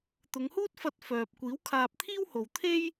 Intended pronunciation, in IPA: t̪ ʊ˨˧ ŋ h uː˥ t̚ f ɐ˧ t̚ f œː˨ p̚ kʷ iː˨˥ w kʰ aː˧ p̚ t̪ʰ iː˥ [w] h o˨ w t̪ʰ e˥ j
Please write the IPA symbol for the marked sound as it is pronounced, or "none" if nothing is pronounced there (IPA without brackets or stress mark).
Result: w